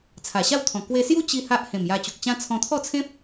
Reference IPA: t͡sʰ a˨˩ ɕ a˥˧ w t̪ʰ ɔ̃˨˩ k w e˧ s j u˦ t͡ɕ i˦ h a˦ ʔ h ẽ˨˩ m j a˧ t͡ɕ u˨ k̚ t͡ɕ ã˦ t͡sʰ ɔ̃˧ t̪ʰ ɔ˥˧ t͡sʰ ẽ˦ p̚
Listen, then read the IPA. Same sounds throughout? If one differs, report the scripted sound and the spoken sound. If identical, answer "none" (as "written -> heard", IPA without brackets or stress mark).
none